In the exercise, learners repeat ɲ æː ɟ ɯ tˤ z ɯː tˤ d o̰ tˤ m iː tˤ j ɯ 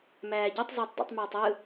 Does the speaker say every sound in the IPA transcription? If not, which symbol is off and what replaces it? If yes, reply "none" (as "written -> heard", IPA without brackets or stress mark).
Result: ɲ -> m